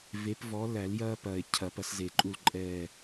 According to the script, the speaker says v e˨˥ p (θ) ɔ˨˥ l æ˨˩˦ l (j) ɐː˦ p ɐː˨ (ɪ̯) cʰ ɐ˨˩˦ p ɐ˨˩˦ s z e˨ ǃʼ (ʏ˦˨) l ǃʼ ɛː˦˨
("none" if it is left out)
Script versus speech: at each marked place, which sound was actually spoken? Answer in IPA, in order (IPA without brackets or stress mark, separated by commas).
v, j, ɪ̯, u˦˨